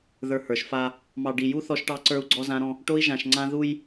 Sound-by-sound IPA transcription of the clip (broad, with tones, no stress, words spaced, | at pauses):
ðə˞˨ hə˞˨ʃfa˦ | mɑ˨ɖi˨ju˦ θɔ˦ʃʈɑ˦ǀə˞˦u̯ ɡ͡ǀɔ˦zã˦ɾɔ̃˦ | ʈo˦i̯ʒã˨ʃŋ͡ǀã˦ ðu˦j